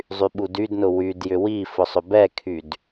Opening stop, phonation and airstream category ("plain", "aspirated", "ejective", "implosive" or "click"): implosive